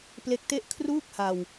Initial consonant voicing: voiceless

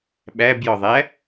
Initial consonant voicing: voiced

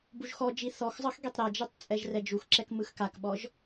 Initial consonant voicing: voiced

